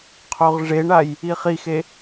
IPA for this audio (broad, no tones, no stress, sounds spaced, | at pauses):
qʰ o ʁ ʐ e ɳ a j | i χ i x e